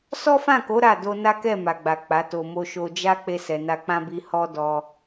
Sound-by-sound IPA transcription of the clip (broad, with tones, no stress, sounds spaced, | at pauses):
s ɔ˦ f ã˦˨ k o˨˦ ɾ a˦˨ d o˧ n a˦ k ɛ˦˨ m a˨ ɡ͡b a˨ k͡p a˨˦ t o˧ m o˧ ʃ o˧ d͡ʒ a˦ k͡p e˦ s ɛ˧ n a˧ k͡p ã˦ b i˧ h ɔ˦ d ɔ˧